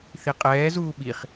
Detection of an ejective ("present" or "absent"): present